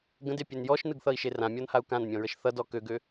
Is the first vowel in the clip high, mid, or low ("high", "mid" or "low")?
mid